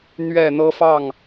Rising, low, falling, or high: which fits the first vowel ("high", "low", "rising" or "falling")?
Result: falling